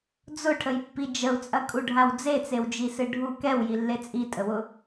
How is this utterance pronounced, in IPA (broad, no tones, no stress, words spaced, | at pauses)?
d͡zʊʈʰəjpːi d͡ʒəu̯t͡sʼɐkʼuɖʱaw d͡zet͡sewd͡ʒisɨ ɖʱu kɛwjilːe t͡sʼitʼəwʊ